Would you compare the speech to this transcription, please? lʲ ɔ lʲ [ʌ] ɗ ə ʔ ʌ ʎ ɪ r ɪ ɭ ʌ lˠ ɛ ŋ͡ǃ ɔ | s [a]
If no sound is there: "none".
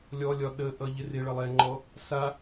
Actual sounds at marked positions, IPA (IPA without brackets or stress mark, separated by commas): ɒ, a